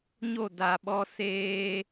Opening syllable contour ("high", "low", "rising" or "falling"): falling